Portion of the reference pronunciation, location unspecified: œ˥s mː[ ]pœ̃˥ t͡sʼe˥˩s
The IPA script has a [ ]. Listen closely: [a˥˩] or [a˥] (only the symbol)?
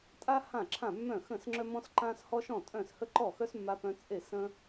a˥